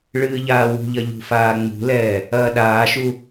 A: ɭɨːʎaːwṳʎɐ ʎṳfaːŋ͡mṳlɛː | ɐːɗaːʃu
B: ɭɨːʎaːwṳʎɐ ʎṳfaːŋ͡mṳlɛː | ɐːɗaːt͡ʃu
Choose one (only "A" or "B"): A